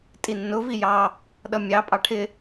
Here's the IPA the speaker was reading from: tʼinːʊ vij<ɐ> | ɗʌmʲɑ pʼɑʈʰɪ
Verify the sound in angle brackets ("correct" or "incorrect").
incorrect